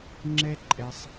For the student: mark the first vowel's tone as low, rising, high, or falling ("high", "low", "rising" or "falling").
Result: high